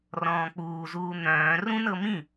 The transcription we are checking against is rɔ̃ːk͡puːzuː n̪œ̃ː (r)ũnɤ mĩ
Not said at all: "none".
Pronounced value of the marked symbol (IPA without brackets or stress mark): r